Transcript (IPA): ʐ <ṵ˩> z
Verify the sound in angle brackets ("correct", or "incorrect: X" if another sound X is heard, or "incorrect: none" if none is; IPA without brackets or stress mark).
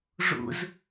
correct